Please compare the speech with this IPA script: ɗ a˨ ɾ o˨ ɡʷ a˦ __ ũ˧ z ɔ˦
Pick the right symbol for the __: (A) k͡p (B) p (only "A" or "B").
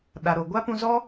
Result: B